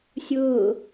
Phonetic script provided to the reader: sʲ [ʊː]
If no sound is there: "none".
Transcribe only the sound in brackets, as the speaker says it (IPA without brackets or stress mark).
ʊː